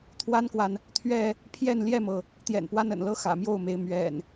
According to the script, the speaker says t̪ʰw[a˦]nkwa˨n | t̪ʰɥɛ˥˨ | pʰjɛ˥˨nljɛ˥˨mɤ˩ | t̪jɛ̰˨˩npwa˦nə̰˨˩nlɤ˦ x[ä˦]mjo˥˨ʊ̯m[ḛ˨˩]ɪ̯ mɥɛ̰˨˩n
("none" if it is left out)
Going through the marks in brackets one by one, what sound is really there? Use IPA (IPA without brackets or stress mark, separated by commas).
a˦, ä̰˨˩, e˨˦